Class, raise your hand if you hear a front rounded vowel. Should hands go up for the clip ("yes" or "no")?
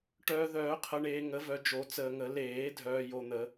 yes